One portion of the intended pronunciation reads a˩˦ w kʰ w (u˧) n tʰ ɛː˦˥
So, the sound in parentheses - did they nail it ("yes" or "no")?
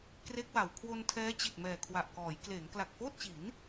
no